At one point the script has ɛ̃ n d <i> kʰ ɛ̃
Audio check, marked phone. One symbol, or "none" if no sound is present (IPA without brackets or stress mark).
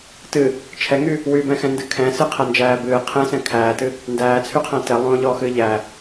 ɨ